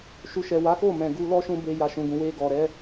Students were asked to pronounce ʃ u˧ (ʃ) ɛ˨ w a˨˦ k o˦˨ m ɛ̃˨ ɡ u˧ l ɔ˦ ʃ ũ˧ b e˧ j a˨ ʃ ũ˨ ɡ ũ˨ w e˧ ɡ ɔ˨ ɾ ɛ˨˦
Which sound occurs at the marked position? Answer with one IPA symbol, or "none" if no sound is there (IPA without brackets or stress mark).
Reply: ʃ